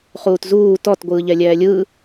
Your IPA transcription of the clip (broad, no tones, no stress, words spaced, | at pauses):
χuːtzuː tɔt ɡʷɯːʎɛlʲɛːlʲɯː